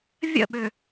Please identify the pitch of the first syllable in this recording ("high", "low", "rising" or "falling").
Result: falling